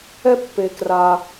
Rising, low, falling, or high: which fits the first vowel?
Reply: high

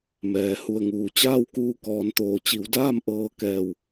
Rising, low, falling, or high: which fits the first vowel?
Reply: low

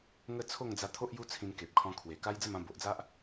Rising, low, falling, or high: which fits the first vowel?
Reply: falling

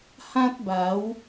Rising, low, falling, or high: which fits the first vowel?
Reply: high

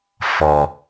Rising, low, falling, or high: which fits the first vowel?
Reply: low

